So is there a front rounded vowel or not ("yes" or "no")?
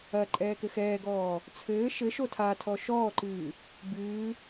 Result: no